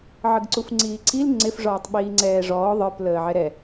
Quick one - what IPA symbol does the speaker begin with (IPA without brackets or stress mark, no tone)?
ʕ